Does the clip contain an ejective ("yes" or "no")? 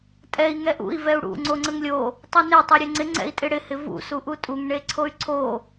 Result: yes